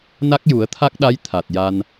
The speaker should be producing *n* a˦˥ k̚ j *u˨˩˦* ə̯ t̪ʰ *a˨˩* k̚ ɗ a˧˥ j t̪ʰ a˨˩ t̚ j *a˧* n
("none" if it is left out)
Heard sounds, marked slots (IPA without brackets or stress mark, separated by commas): n, u˨˩˦, a˦˥, a˧